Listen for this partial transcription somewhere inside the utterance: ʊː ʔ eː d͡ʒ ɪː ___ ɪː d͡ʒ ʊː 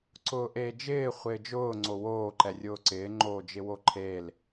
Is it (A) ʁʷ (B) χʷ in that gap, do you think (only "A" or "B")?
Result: B